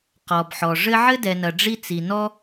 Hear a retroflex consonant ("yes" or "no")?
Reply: yes